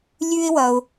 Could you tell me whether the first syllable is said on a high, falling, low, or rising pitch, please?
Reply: high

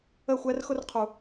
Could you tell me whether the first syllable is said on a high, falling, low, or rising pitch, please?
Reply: falling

